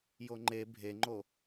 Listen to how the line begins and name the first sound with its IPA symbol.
j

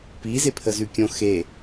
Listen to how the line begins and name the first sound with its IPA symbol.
p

